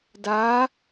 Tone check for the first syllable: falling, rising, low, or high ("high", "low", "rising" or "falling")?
rising